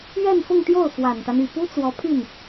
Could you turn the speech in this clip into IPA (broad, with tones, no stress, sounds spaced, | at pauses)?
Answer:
ɥ ɛ˥˧ n f ʊ˥˧ ŋ t̪ j o˥˩ ʊ̯ f w a˨˩ n t̪ a˦ n y˨˩ p u˥ t͡s w ɔ˧˥ pʰ y˥˩ n